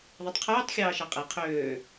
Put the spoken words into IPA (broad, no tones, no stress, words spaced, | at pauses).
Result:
ðˤetˤqʰyːtˤ xʲɑːʃɑqʼe qʰøː